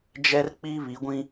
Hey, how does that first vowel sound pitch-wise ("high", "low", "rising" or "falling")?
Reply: high